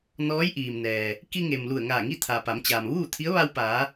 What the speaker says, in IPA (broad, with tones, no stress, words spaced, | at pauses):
nɔː˧˥jʔiː˩mnɛː˩ | ki˧ŋe˩m lu˧˩ə̯ŋaː˧˩ŋi˥˨t̪ʰa˩ pa˩˧mt͡ɕaː˩mʋuː˥˨t̪ʰi˧˥ə̯ ʋa˧wpaː˩˧